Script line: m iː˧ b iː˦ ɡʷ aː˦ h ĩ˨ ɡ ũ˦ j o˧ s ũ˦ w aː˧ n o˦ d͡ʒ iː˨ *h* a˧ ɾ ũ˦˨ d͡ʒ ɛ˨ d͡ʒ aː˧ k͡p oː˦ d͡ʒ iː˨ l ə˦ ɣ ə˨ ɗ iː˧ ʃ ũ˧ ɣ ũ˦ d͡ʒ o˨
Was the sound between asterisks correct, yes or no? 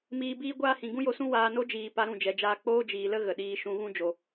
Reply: no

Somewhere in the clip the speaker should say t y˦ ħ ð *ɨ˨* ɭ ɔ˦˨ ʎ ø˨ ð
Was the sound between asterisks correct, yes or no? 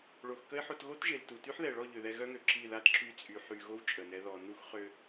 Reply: no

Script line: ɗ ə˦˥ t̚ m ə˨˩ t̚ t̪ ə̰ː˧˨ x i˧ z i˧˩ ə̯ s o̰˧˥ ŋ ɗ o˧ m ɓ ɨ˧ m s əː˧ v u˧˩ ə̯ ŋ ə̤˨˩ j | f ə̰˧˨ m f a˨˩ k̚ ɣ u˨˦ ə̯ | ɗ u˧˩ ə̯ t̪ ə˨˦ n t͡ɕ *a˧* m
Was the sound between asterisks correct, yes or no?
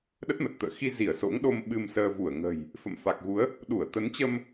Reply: no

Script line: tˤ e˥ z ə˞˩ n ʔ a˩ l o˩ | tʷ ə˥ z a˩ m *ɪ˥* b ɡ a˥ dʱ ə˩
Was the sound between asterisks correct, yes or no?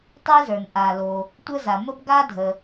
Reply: no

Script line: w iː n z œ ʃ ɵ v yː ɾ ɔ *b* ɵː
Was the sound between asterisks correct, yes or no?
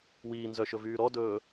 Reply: no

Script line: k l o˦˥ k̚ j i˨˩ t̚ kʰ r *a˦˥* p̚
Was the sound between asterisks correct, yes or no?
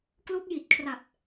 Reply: no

